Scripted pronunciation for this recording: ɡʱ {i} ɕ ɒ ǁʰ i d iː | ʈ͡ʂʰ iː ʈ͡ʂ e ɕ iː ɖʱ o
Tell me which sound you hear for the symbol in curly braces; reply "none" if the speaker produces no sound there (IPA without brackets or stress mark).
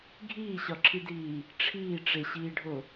iː